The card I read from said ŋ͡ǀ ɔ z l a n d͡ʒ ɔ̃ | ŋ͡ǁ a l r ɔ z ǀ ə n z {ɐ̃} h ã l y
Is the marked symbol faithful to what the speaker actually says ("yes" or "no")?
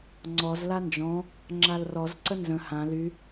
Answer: no